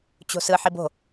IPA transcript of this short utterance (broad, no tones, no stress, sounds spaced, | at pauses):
t͡ɕ o̤ s ɯ ħ i b o̤